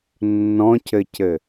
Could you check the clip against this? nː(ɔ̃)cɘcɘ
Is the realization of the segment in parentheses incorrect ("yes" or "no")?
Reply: no